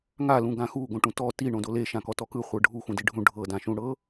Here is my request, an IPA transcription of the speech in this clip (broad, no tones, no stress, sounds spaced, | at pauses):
ŋ a l ũ ɡ ã x u ɡ õ ʈ ũ t ɔ t i ɳ õ d o l e ʃ ã k ɔ t ɔ k ɯ χʷ ɤ ɖʱ u x ũ d i ɖʱ ũ ɖʱ ɤ d ã ʃ ũ ɽ ɤ